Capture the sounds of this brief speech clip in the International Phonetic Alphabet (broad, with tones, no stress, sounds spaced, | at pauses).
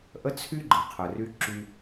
ʔ ə˥ t͡sʰ y˥ ɡ͡ǃ ɨ˩ qʰ ə˨ r y˥ ǁ y˦